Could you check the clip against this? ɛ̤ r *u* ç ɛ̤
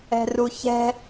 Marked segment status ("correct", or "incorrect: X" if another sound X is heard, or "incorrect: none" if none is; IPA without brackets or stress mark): correct